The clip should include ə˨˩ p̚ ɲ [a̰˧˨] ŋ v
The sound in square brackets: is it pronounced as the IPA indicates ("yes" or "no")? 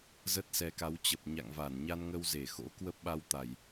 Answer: yes